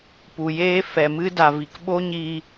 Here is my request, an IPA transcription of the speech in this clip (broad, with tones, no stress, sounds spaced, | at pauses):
p u˨ j eː˦ f ɛ˨ m ɨ˦ d a˨ v i˨ k ɓ o˦ ɲ iː˧